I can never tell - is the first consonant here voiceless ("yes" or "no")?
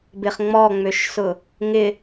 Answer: no